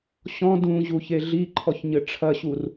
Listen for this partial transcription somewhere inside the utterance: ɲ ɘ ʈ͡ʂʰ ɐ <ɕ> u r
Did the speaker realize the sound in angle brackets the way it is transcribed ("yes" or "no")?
yes